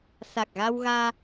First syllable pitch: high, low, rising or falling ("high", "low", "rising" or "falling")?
low